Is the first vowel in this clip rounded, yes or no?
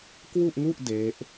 yes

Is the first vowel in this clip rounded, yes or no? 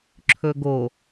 yes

